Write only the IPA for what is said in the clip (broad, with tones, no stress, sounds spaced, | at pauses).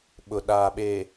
ɓ ʊ˨ ɗ aː˨ ɓ e˨